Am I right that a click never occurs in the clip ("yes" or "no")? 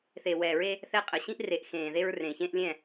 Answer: yes